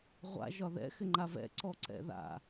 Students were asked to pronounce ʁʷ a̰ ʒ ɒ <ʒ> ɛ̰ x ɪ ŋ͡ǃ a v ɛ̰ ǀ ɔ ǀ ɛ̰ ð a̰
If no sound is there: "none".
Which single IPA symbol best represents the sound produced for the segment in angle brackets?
ð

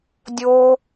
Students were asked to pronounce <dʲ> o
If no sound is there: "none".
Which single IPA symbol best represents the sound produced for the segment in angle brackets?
dʲ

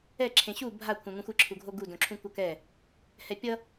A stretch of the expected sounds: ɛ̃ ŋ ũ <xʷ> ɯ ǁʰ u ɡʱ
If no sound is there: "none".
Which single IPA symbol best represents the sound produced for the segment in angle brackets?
xʷ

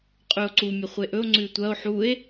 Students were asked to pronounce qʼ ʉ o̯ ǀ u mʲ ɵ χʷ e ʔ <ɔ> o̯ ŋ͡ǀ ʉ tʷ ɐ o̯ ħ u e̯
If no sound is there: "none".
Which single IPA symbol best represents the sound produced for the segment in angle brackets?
ɵ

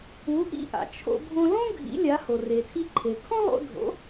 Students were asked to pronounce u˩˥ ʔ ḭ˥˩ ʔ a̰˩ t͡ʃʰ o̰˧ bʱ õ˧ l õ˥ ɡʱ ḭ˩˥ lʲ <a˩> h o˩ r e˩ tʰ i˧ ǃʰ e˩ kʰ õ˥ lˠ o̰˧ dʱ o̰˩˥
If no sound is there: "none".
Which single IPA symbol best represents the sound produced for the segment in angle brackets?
a˩˥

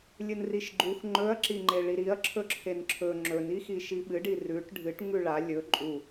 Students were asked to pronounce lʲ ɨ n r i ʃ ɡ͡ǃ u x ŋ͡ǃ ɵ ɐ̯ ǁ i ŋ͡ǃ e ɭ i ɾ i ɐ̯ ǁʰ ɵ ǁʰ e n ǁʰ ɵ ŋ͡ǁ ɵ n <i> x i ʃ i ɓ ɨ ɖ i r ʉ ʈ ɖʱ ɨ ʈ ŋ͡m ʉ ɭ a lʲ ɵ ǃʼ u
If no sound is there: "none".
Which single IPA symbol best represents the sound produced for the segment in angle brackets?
i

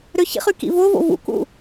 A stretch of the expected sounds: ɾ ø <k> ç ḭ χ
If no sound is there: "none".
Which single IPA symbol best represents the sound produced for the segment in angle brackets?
none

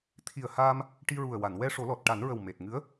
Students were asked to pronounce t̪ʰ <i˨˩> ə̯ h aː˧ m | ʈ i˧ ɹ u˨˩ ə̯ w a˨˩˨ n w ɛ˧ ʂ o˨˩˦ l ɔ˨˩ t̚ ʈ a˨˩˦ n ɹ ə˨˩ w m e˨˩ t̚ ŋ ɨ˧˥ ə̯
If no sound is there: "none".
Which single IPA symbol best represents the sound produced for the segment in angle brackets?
i˨˩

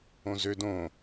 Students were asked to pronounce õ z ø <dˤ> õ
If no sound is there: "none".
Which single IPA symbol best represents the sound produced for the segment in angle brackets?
d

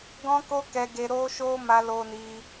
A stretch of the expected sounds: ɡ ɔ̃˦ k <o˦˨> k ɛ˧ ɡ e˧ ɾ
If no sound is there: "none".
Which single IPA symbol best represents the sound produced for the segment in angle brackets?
o˦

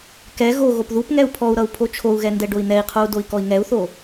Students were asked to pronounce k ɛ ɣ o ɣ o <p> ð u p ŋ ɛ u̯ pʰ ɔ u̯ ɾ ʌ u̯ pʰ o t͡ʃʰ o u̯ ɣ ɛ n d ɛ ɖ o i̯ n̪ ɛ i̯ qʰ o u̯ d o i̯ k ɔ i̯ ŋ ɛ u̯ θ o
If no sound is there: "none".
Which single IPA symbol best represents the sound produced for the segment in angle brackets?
p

